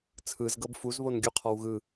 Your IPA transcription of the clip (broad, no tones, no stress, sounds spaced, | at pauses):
t͡sʰ ɯ z ɡ ɤ b f u z β o n ɡʲ u qʰ ɔ w ɣ ɯ